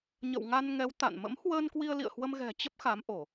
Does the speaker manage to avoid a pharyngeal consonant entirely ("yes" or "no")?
yes